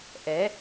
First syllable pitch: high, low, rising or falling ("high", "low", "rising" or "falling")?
rising